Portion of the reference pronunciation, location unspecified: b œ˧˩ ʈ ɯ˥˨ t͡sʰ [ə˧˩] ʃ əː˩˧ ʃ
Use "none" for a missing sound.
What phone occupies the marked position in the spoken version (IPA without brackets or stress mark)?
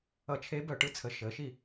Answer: ə˧˩